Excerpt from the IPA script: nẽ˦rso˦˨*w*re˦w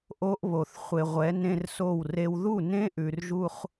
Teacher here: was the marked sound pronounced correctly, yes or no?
yes